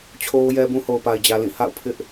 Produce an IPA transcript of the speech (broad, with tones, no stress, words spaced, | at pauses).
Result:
t͡ɕʰo˦ʊ̯jɛ˦bũ˦ ho˨ʊ̯pa˨ɪ̯d͡ʑä˨lĩ˦˨ ha̰˦˨ʊ̯ pʰɪ˦ʔ